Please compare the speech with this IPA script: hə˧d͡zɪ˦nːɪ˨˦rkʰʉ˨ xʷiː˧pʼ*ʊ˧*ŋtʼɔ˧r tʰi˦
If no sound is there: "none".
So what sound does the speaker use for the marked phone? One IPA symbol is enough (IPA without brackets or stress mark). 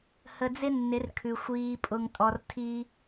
ʊ˧